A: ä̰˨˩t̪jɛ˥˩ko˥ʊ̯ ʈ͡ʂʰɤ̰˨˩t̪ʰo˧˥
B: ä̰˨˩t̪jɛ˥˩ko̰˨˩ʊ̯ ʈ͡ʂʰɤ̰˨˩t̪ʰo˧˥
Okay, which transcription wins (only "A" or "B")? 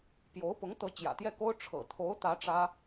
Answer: A